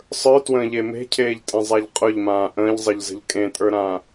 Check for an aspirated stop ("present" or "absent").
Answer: present